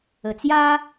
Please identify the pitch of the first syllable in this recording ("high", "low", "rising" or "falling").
low